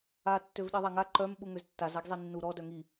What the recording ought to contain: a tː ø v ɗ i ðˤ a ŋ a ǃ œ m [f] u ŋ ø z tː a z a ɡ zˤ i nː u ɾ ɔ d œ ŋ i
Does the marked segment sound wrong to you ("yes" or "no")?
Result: yes